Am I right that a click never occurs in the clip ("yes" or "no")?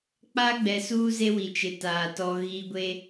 yes